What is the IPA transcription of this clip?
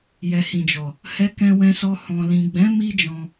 j ɛ˨ h ĩ˨ d͡ʒ ɔ˨ | h ɛ˧ k ɛ̃˧ w ɛ̃˧ s ɔ˧ h ɔ̃˨ l ĩ˨ ɡ͡b ɛ̃˨˦ m i˦ d͡ʒ ɔ̃˧

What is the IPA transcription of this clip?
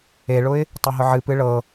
e ɭ ʊ ɪ̯ | tˤ e ɦ ʊ ʕ ɨ p ɨ ɭ ɤ

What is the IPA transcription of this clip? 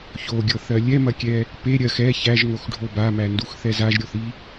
ç o ɡʲ ɤ θ ɜ lʲ ɛ m ɐ kʲ ɛ | p e ɾʲ ɜ x ɛ ç æ ʒ ŋ o x ɖʱ o b a m æ n d u x θ ɛ z a ʒ ɾʲ o θ i

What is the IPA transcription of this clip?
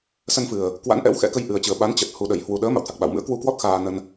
s ə˧ n f ɨ˨˩ ə̯ | k w a̰˧˥ n ʔ ɛ̰˧˥ w x ɛ̰˧˥ k ə˧ j ʔ ɨ˨˩ ə̯ t͡ɕ ɨ˨˩ ə̯ ɓ a˨˦ n t͡ɕ ə˨˩ t̚ h u˨˩ ɗ ə˧˩ j h w u˨˩ ɗ əː˨˦ m a̰˧˨ w t̪ʰ a˨˩ k̚ ɓ a̰˧˨ w m ɨ̰˧˥ ə̯ k w u˧ k w ɔ˦˥ t̚ x aː˧ n ə˧ n

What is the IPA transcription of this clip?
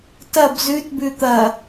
t ɐ b z ʉ t b ʉ t̪ ɐ

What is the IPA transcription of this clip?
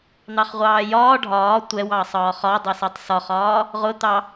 n̪ ɑ χ ʁʷ ɑː j ɒː ɖʱ ɒː tʷ ɛ w ɑː sˤ ɒː χ ɒ dˤ ʌ s ɒ tˤ s ɒ χ ɒː | ʁ ʊ t̪ ɑ

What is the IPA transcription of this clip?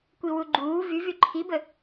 kʷ i w u ɡ͡ǃ uː v y v y ǃʰ i b ə

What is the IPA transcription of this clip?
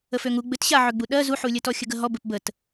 ə f ø ŋ u ɡ͡b ɘ t ɕ a ʕ ø ɡ͡b u ɗ ɜ z u ħ u lʲ ə t ɔ xʲ ə ɡ ə ɦ ɔ b ɘ p b ə t

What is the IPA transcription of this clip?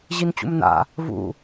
ʑ i n t͡ɕ ṵ m n a̰ | v ṵ

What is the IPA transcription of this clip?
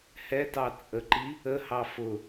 h ɛ t ɑ t͡sʼ ə ǃ i | ə h ɑ f ʊ

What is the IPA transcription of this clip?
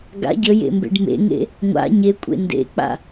ɡ a̰ ɟ ə j ḛ m b ḛ ɖ m ḛ ŋ ḛ | ŋʷ a̰ ɲ e kʷʼ ḛ n d ḛ k͡p a̰

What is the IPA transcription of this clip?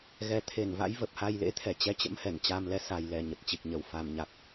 ɣ ɛ˨˩ t̪ʰ e˧˩ n v a̰˧˥ j v ə˨˩ p̚ h a˧ j l ḛ˧˥ t̪ʰ ɛ˨˩ t͡ɕ ɛ˨˦ t͡ɕ ə̰˧˥ m h ɛ˧˩ n t͡ɕ a˧ m l ɛ˧ s a˨˩ j l ɛ˨˩ ɲ ə˨˩ t̚ t͡ɕ i˨˩ k̚ ɲ ə˨˩ w f a˨˩ m ɲ a˨˩ k̚

